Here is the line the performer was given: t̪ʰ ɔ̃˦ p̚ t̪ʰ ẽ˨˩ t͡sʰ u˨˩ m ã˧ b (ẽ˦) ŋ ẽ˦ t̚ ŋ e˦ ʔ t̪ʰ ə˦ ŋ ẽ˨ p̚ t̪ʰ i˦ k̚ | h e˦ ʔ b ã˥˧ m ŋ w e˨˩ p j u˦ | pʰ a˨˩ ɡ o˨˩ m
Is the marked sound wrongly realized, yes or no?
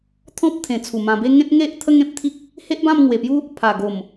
yes